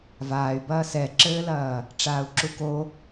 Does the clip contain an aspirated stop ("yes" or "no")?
no